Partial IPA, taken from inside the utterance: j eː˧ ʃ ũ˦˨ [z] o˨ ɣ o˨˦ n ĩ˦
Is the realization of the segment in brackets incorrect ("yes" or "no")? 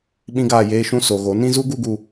yes